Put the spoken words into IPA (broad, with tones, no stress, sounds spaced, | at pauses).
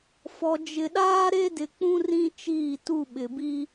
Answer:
f ɔ˨ d͡ʒ ɪ˨ ɗ aː˦ ɾ e˦ d ɪ˨ k͡p ũ˦ r ĩ˦ t͡ʃ iː˦˨ t u˦˨ ɓ ɪ˨ b i˦